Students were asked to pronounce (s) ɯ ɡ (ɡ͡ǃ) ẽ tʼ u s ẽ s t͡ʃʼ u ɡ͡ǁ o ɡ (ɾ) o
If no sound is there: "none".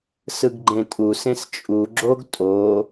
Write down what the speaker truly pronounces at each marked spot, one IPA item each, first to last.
s, ɡ͡ǃ, tʼ

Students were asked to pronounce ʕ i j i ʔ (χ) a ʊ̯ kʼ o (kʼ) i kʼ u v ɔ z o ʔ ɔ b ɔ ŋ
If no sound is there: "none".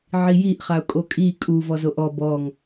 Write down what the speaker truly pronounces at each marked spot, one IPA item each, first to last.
χ, kʼ

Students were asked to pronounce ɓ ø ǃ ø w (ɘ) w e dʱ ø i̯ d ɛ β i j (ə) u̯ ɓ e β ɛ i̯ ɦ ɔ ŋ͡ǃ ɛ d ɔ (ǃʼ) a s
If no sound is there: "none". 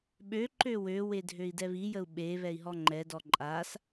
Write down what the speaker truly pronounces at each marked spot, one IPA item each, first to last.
ø, ə, ǃʼ

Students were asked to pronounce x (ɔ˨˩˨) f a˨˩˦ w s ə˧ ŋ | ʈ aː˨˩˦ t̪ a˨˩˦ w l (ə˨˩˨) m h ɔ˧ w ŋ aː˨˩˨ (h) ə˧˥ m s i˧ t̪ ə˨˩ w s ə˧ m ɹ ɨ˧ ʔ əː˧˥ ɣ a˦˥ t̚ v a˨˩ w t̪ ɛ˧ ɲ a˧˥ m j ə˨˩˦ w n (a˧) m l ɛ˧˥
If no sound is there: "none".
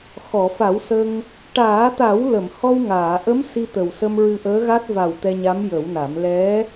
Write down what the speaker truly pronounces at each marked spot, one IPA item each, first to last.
ɔ˨˩˨, ə˨˩˨, ʔ, a˨˩˦

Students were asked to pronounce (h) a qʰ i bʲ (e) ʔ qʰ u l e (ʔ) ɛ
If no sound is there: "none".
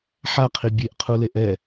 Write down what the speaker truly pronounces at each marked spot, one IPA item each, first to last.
ħ, e, ʔ

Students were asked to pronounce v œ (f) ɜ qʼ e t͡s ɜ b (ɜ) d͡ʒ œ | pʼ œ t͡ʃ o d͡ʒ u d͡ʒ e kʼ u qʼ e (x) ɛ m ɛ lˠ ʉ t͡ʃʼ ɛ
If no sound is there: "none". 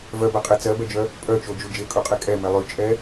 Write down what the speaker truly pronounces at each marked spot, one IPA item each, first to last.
b, ɛ, kʼ

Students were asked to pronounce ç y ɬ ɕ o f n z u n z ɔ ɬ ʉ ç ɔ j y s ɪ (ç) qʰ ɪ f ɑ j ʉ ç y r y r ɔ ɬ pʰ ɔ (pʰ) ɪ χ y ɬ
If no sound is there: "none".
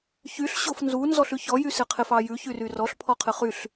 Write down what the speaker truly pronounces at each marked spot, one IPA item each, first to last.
none, qʰ

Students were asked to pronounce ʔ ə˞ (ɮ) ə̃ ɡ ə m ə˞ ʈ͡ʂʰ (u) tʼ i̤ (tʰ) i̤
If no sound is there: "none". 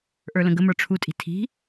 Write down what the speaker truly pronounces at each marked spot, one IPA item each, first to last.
l, u, tʰ

